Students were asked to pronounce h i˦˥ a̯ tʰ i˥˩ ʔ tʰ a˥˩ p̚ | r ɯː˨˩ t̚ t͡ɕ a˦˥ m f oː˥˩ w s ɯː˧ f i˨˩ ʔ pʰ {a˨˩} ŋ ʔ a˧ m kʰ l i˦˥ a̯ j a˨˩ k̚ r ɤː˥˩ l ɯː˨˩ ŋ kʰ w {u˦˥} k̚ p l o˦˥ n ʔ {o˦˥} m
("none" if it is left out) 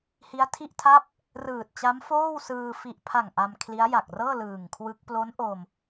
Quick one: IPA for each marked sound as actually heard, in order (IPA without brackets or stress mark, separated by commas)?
a˨˩, ɯ˦˥, o˧